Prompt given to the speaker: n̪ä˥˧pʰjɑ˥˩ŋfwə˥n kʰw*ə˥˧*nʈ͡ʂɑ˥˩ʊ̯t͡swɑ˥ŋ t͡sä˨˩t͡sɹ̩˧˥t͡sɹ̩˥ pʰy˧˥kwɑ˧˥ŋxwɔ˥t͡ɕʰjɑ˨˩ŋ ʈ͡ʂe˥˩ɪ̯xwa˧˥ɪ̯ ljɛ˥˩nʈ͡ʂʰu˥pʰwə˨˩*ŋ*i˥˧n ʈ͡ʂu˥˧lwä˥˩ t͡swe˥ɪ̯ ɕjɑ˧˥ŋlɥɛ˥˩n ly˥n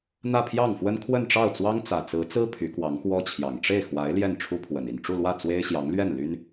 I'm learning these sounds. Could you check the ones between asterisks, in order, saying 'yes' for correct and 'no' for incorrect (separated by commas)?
yes, no